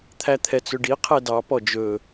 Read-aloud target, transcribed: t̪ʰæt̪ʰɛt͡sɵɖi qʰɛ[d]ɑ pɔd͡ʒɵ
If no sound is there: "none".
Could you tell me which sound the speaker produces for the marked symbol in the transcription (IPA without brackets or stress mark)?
d